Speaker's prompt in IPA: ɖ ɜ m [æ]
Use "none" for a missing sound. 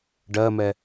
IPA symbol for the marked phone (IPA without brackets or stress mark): ɛ